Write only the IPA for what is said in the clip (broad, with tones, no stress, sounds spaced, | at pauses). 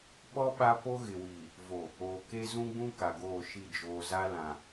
ɓ ɔ˦ ɓ a˦ p o˦ ɣ ɪ˨ w iː˨ | v o˨ | oː˨ k e˦ z ũ˦ ɡ͡b ũ˦ k a˨ ɡ oː˦˨ ʃ i˦˨ d͡ʒ oː˨ z a˦ l ã˨